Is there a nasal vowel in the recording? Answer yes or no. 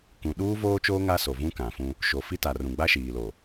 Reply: yes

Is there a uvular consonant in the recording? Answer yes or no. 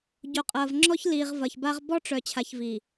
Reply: yes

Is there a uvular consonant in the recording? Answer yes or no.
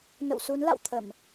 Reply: no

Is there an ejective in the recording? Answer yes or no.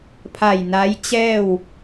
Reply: no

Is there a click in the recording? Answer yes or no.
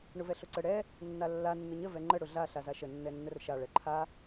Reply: yes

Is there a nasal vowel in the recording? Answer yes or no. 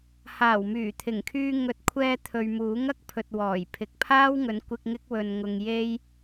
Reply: no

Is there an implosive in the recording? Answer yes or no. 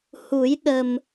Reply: yes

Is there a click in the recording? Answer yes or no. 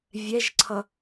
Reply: yes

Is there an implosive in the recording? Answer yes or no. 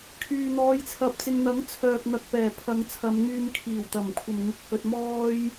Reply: no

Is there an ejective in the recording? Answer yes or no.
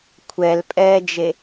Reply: yes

